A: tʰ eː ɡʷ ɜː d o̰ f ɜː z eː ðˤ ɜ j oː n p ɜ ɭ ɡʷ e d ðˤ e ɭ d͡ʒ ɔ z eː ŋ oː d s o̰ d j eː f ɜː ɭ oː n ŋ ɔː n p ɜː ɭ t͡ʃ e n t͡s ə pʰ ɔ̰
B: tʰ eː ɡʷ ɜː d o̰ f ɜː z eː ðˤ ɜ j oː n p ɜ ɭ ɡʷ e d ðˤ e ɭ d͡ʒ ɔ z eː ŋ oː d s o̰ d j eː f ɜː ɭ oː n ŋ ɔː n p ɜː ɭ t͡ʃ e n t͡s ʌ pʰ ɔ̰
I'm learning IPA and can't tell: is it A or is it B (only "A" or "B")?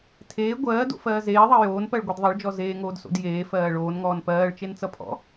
B